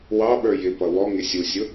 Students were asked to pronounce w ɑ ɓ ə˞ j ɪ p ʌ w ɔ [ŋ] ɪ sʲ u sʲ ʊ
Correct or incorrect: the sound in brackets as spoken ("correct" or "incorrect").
correct